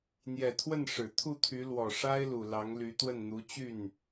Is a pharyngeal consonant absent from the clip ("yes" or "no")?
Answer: yes